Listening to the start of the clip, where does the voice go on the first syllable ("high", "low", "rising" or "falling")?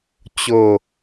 falling